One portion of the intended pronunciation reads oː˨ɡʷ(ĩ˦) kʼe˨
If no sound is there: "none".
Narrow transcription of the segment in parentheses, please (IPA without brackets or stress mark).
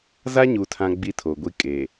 i˦